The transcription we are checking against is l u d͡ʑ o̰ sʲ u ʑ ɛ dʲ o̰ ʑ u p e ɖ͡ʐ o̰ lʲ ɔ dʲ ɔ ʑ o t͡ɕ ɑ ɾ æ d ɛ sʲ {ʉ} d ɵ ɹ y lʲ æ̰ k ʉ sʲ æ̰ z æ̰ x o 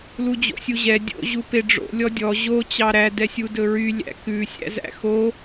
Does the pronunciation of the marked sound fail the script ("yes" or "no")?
yes